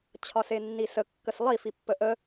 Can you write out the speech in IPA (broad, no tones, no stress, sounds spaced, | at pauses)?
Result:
t͡ɕʰ ɒ s e nː i s ə kː ə s lˠ i f i pː ə ʔ ə